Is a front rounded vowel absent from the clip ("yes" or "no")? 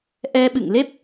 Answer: yes